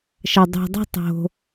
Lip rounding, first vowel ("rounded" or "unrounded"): unrounded